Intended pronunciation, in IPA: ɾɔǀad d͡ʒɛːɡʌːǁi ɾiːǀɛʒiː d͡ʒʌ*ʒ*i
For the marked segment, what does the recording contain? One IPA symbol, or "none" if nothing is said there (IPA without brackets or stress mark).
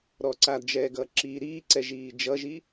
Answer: ʒ